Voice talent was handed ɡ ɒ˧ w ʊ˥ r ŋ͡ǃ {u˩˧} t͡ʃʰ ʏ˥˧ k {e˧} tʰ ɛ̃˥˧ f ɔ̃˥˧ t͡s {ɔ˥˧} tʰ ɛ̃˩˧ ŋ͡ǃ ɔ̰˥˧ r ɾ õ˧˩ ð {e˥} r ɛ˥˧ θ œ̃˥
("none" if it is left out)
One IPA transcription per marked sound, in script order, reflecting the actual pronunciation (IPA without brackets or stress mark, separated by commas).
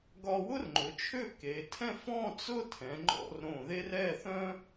ʊ˩˧, e˩˧, ʊ˥˧, e˥